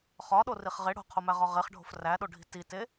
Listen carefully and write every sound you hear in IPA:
χ ɒ ɗ o r i χ ʁ e ɽ o̤ qʰ o m æ ʁ ɒ ʁ e χ ɖʱ o̤ f r æ ɗ o ɖʱ i̤ t i t e

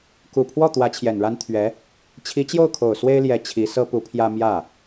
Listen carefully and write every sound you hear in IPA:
k u˨˩ pʰ w ɔ˥˩ t̪ w ä˧˥ t͡ɕʰ j ɛ˨˩ n ɻ a˥ n t̪ʰ ɥ ɛ˧˥ | t͡ɕʰ i˧˥ t͡ɕ j o˥˩ ʊ̯ kʰ o˨˩ ʊ̯ s w e˥ ɪ̯ l j ɛ˧˥ t͡ɕʰ i˧˥ s ɤ˥ p u˧˥ pʰ j ä˥ m j ä˥˩

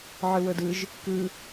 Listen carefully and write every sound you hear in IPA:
ʕ ɯ w ɤ d ɯ ʒ | k ɯ

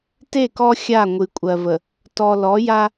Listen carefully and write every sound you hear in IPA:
t e˦˨ k ɔ˦ xʲ a˦˨ ŋʷ ɨ˨ kʷʼ ɜ˨ v ə˨ | t ɔ˨ l ɔ˨˦ j a˦

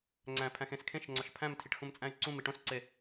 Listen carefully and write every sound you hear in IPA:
ŋ͡ǀ æ̃ pʰ æ̃ x ẽ s kʰ ẽ ʃ ŋ͡ǀ ɒ ʃ pʰ æ̃ m tʰ i ʈ x ũ m t͡sʼ æ̃ y̯ ǀ ũ m i ʈ õ s ǀ e

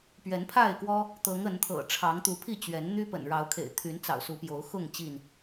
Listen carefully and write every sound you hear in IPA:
p ɥ ɛ˨˦ n pʰ a˥˨ ɪ̯ k w ɔ˦ | t̪ ɤ˨˦ ŋ ə˨˦ n t̪ʰ ɤ̰˨˩ ʈ͡ʂʰ ɑ˨˦ ŋ t̪ u˨˦ pʰ i˥˨ t͡ɕ ɥ ɛ˨˦ n n̪ y˦ p ə̰˨˩ n ɻ ɑ˨˦ ʊ̯ kʰ ḛ˨˩ ɪ̯ t̪ʰ y˨˦ n t͡s ɑ̰˨˩ ʊ̯ s u˨˦ p j o˨˦ ʊ̯ x ʊ˥˨ ŋ t͡ɕ i˥˨ n

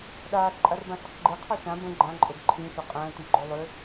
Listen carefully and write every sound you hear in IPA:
ɗ aː ɬ ǃʼ a r b ã ɬ ʏ q ɡ͡ǃ e qʰ ɔ ʃ ã b ə̃ ɡ͡ǃ ã ǃʼ o ɡ ǃʰ ĩ ʃ o qʼ ə̃ː t i ɡ͡ǃ o lˠ ʏ

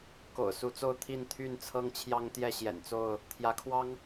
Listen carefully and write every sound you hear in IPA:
k o̰˨˩ ʊ̯ s u˨˦ t͡s o˥˨ ʊ̯ t̪ʰ i˥˨ n t̪ʰ y˥˨ n t͡sʰ ɤ˦ ŋ t͡ɕʰ j ɑ˦ ŋ t̪ j ɛ˥˨ ɕ j ɛ̰˨˩ n t͡s o˥˨ ʊ̯ | t̪ʰ j ä˨˦ kʰ w ɑ˦ ŋ

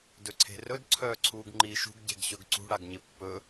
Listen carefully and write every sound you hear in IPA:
d ɵ ǀʰ e̤ r ɵ d ǀʰ œː ǀʰ uː ɡ ŋ͡ǃ iː ʃ ṳ ɡ ɟ e̤ ɡ ɕ ɵ ɡ ǀ ṳ ɽ a ɡ ɲ ɪ pː ɵ

